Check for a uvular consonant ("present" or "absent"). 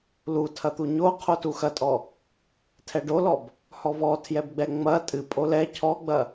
present